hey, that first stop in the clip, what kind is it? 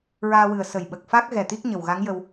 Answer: implosive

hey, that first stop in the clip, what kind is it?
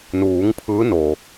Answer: aspirated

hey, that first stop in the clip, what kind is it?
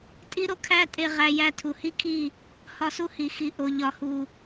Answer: ejective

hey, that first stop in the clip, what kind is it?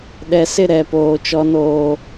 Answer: implosive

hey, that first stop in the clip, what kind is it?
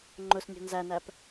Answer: click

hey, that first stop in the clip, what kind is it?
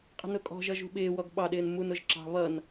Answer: ejective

